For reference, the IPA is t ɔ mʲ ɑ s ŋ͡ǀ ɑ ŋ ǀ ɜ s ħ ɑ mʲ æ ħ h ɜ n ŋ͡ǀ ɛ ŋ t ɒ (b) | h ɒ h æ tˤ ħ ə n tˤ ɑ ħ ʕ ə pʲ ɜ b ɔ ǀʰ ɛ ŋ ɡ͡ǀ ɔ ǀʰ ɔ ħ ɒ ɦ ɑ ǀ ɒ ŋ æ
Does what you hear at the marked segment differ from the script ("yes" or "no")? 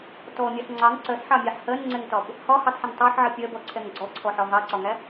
no